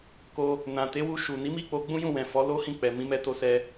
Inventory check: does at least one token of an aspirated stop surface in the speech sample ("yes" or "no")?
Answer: no